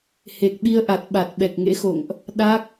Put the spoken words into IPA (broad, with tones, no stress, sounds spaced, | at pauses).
h e˨˩ k̚ ɓ i˧ ə̯ ʔ a˨˩ t̚ ɓ a˨˩ t̚ ɓ ɛ˨˩ k̚ ŋ ḛ˧˥ x o̰˧˨ ŋ ʔ | ɗ a˦˥ k̚